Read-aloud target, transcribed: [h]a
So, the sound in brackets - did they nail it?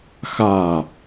no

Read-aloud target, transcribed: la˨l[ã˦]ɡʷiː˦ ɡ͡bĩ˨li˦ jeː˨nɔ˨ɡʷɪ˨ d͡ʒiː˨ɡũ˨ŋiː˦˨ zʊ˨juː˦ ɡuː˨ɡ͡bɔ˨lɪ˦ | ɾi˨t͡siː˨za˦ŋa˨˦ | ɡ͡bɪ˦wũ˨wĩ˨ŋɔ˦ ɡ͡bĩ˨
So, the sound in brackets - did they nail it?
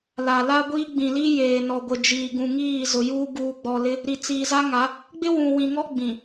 no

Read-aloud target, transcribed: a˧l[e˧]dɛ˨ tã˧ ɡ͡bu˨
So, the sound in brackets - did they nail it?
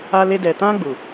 yes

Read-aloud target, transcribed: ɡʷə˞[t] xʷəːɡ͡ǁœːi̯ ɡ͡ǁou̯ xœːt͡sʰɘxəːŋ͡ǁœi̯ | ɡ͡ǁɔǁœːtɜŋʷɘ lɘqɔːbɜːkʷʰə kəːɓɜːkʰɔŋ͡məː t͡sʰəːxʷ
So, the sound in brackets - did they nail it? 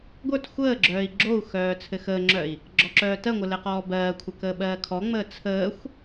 yes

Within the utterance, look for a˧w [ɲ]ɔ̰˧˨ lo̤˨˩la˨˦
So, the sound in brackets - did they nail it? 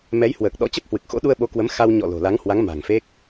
yes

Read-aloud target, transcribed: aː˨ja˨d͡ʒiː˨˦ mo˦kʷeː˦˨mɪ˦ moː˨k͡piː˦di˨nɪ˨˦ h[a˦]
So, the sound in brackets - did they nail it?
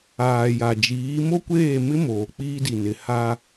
yes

